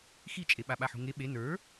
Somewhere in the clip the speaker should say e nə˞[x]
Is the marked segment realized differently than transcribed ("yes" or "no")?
yes